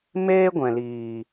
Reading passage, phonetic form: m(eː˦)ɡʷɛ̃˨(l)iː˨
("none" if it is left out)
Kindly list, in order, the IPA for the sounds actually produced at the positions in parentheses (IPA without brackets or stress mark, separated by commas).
eː˦, l